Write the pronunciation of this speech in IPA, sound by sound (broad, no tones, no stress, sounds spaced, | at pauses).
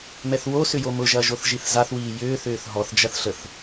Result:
m ɛ θ w o s ʏ j o m ʊ ʒ ɐː ʒ o θ ʒ i θ z a θ w iː j ʏː θ ʏː θ ɦ ɔ θ d͡ʒ ɐ θ ɬ ə θ